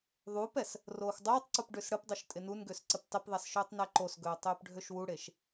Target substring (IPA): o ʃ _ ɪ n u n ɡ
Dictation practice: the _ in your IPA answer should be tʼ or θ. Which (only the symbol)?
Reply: tʼ